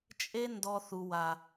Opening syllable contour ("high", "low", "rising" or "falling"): high